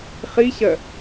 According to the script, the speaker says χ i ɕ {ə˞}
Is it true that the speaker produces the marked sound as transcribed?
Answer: no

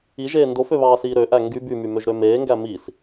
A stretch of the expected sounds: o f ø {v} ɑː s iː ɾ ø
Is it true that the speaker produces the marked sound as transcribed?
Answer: no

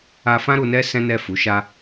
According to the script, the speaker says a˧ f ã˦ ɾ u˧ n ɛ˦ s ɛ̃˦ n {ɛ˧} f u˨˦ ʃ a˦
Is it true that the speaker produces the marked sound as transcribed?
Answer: no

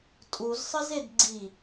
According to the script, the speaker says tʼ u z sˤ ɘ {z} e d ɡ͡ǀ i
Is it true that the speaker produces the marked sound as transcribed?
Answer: yes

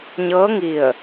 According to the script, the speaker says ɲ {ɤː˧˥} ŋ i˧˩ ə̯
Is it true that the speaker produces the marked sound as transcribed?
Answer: yes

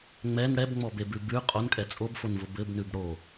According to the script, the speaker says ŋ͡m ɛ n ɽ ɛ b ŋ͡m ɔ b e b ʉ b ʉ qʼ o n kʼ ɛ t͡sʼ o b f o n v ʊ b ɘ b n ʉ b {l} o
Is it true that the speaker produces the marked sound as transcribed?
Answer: no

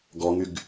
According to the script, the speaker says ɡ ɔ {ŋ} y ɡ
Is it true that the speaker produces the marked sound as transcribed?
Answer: yes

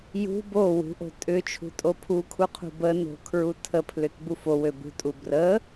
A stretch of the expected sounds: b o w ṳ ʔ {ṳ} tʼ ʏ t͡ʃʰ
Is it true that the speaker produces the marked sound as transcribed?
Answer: no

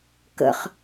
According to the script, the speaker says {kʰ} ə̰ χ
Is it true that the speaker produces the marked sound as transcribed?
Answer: no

